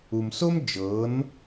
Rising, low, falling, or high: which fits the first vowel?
low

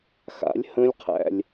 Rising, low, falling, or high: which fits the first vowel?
rising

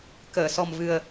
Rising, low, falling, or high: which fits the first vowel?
low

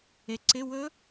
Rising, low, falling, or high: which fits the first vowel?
low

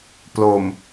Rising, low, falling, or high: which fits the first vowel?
low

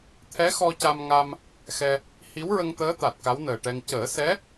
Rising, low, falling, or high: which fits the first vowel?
rising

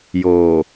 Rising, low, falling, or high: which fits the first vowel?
low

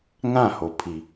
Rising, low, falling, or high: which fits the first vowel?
falling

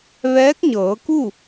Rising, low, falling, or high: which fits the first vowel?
rising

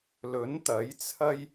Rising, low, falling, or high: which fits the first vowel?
rising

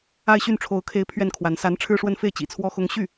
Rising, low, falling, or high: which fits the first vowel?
falling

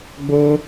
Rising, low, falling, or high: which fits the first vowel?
high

